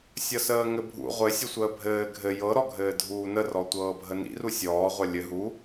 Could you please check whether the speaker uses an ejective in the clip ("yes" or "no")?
no